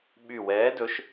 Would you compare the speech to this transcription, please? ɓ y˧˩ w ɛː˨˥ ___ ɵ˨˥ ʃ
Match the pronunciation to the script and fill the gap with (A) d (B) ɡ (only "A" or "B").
A